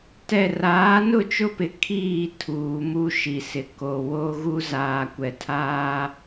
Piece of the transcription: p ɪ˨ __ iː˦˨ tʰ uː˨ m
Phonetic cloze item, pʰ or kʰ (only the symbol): kʰ